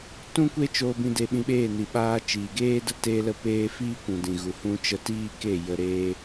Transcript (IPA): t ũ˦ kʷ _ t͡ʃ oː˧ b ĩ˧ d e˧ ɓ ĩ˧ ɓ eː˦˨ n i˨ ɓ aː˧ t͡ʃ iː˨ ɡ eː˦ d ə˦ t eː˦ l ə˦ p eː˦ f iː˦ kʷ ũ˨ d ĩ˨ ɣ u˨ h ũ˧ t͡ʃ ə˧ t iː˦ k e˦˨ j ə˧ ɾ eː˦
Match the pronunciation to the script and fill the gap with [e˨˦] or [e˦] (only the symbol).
e˦